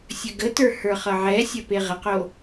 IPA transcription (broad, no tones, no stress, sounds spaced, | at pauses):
sʲ ə ɡ ə t ə˞ h ə˞ χ ʌ ʕ ɛ sʲ ɐ p e ʁ ə q o